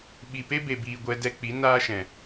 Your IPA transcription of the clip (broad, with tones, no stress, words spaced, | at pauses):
ɓi˨pe˦ be˨biː˨ ɡʷɛ˧dɛ˧k͡pi˨˦ naː˦ʃɛ̃˨